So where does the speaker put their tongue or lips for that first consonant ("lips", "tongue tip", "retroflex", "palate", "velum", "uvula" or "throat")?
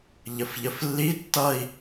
palate